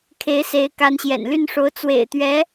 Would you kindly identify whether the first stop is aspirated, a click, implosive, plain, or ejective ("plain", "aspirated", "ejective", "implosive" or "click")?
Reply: aspirated